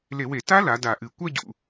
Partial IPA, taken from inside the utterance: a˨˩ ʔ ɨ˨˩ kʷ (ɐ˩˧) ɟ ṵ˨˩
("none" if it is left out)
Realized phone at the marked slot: ɐ˥˧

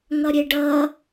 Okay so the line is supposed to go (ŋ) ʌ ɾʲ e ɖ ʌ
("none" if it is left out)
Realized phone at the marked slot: ŋ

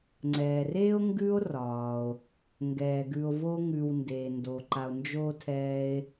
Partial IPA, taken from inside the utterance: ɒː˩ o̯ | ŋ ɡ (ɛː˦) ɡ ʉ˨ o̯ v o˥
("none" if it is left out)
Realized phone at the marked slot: ɛː˩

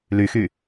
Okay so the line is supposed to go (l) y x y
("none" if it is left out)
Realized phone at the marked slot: l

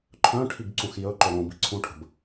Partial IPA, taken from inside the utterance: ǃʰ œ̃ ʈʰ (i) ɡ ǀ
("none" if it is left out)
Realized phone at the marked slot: i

